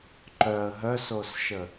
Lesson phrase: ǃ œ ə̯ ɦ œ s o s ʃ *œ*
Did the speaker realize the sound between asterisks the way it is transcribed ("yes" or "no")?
no